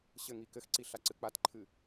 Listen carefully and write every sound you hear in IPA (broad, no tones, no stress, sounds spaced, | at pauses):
ɕ ɘ ŋ i k ɘ x ǀ i ɬ a ǀ ɨ k͡p a t ǃʰ ɨ